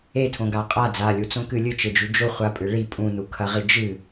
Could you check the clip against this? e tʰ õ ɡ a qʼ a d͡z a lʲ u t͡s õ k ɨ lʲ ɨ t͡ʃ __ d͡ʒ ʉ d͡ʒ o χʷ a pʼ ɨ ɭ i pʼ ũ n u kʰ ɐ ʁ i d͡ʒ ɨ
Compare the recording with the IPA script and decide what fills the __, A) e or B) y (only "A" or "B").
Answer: A